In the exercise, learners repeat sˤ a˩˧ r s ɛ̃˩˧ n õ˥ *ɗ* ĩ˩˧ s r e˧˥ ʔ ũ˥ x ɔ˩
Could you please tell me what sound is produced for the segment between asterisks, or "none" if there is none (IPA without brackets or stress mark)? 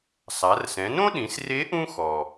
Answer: ɗ